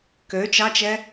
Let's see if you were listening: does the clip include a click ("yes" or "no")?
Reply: no